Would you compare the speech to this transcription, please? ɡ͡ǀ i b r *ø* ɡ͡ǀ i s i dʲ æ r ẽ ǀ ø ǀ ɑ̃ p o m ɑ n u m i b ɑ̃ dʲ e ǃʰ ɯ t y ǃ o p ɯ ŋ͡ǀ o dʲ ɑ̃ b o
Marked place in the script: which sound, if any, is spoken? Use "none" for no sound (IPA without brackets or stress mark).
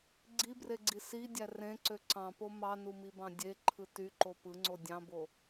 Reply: e